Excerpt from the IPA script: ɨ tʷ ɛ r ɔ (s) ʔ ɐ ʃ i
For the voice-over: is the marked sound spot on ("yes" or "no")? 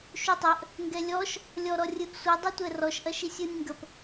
no